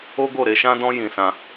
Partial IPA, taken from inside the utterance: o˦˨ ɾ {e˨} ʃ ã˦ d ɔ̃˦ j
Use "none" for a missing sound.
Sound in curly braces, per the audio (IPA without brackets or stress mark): e˧